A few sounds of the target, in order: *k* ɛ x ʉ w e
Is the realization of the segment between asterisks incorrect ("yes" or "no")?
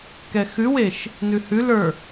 no